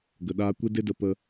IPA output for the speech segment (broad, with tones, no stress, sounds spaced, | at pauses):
ɡ ə˨ ɗ aː˧ kʷ e˦ d e˦ d ə˦ p ə˦